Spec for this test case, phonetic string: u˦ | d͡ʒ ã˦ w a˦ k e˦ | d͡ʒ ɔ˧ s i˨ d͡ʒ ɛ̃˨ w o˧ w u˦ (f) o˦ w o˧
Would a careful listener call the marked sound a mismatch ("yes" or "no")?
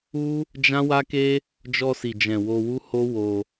yes